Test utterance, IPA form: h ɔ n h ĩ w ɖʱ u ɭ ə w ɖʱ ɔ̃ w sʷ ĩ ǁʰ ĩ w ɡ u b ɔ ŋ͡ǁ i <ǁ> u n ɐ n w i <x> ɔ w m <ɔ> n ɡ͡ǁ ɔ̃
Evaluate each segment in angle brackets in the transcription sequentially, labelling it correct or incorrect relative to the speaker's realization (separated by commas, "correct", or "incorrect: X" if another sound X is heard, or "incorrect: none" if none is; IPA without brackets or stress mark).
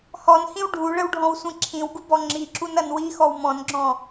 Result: correct, correct, incorrect: ɔ̃